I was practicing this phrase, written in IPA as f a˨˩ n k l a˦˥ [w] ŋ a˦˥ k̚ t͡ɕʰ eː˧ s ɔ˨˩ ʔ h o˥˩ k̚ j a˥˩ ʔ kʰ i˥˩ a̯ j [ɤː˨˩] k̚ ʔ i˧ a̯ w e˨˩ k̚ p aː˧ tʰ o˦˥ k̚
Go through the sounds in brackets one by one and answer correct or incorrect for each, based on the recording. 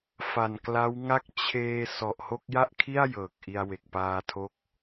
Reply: correct, correct

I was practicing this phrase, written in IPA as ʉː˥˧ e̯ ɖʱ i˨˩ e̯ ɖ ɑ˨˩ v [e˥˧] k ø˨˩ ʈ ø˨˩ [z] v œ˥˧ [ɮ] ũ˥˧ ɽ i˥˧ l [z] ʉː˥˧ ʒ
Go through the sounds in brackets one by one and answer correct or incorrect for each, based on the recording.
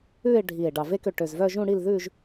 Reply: correct, correct, incorrect: ʒ, incorrect: ð

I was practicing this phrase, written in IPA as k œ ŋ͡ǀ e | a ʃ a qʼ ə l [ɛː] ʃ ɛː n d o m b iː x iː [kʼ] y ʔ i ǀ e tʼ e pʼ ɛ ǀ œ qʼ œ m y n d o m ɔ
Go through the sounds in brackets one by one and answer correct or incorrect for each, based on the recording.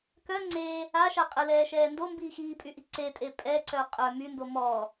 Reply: correct, incorrect: pʼ

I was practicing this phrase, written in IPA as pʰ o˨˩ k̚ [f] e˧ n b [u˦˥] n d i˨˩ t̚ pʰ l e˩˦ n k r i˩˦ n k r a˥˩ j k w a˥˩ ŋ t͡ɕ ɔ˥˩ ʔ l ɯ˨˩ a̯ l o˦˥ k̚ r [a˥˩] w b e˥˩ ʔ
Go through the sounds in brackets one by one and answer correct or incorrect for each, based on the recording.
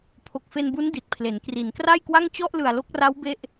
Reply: correct, correct, incorrect: a˦˥

